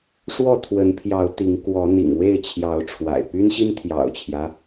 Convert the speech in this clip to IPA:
ʂ w ɔ˥˨ t̪ʰ w ə˨˦ n pʰ j ɑ˨˦ ʊ̯ t̪ i˨˦ ŋ k w ɔ˨˦ n̪ ḭ˨˩ ŋ w e˥˨ ɪ̯ t͡ɕʰ j ɑ˨˦ ʊ̯ ʈ͡ʂʰ w a̰˨˩ ɪ̯ p y˦ n ɕ i˦ n t̪ʰ j ɑ̰˨˩ ʊ̯ t͡ɕʰ j ä˦

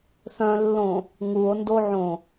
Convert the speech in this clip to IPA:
θ œ̃ lː õ | ŋ u o̯ n d o ʕ õ

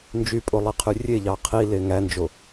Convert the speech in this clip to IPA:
n d͡ʒ y pʼ o lˠ i qʰ y rʲ e ʎ ɑ qʰ i l e ŋ æ n d͡ʒ o

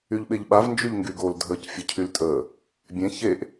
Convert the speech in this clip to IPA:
y ʎ ɓ e ʎ ɓ a v n d͡ʒ y ʎ ŋ ɡ y ɡ o l dʱ əː c fʲ ə cʰ y l tʼ əː | bʲ ẽ ç e ʔ

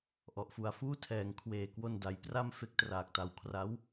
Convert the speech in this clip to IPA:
ʔ ɔ˨˩ ʔ f u˨˩ a̯ f uː˥˩ tʰ ɛː˩˦ ŋ kʰ w eː˨˩ k w o˧ n d a˩˦ j p r a˥˩ m f e˦˥ k̚ t r aː˨˩ k̚ t a˨˩ w kʰ r a˦˥ w

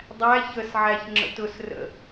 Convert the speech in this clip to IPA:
dˤ æ ç ə s ʕ æ ç ŋ͡ǁ ə̰ t ʊ s r ə̰

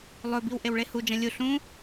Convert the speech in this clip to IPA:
lˠ ɵ b i w ʔ e w ɭ e h u d͡ʒ ɐ̃ lʲ u ɬ ũ

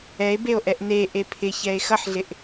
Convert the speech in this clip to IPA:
ɛ e̯ b e o̯ ʔ ɛ ʔ n e ʔ e pʰ ɪ ç ɛ e̯ x ʌ ħ ɮ ɪ ʔ

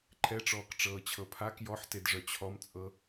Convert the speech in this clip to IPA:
ǃʰ ɛ ʈ͡ʂ ɔː k ʈ͡ʂ ɤː t͡ɕʰ ɤ pʰ a k j ɔ ħ t e d ʐ œ t͡ɕʰ ɔ m t͡sʼ ɤ

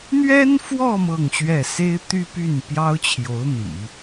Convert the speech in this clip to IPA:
n̪ ɥ ɛ˥ n f w ɔ˥˧ m ɤ˥˧ ŋ ɕ ɥ ɛ˥˩ s e˥ ɪ̯ t̪ y˥ p y˥˩ n p j ɑ˥ ʊ̯ t͡ɕʰ j o˧˥ ʊ̯ n̪ ḭ˨˩˦

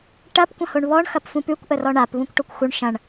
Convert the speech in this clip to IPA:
ʈ ɐ p kʷ ɐ̃ h o ɳ β ɔ ɳ x ɐ p f ũ p ʉ kʷ ʔ ə r ɔ ɳ a p β ũ kʷ ʈ o kʷ x u ɳ ʃ ɐ̃ ɳ

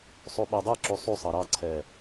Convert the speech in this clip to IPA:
sˤ u ɓ ɛ dˤ e ǁ u sˤ u sˤ ɑ ɾ ɑ ǀʰ ɛ

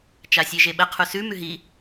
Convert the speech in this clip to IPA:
t͡ʃ a sʲ e ʒ e ɓ ə qʰ u s ʉ m ʉ ɦ i

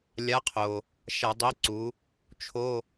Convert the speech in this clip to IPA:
lʲ a˨˥ qʰ o˩ | ʃ a˧˩˧ dˤ i˨˥ ǀ u˩˧ | t͡ʃʰ o˧˥˧

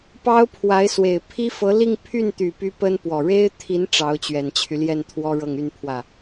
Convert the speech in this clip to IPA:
p ɑ˥ ʊ̯ pʰ w a˧˥ ɪ̯ s w e˨˩ ɪ̯ pʰ i˥ f ɤ˧˥ l i˥˧ ŋ pʰ y˥˩ n t̪ y˨˩ p y˧˥ p ə˥ n p w ɔ˨˩ ɻ e˥ ɪ̯ t̪ʰ i˧˥ n ʈ͡ʂ ɑ˧˥ ʊ̯ t͡ɕ ɥ ɛ˨˩ n t͡ɕʰ y˦ l j ɛ˥˩ n t̪ʰ w ɔ˥ ɻ ɤ˥˧ ŋ y˥˧ n pʰ w ä˥˩

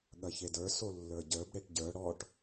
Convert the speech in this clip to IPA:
ɠ ɐ ç e d ə˞ s o lː ə˞ ɟ ə˞ b ɽ e ʈ ɟ ə˞ ɽ ɔ ʈ

